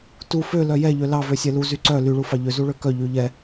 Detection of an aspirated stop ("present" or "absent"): absent